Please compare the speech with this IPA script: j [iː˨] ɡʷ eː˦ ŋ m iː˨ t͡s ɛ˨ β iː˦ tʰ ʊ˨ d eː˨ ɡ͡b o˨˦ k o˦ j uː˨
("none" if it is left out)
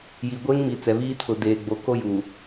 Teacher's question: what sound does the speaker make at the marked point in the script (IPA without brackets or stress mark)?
iː˨